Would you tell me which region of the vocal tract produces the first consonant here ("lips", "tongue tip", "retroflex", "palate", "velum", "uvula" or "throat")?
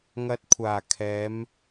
velum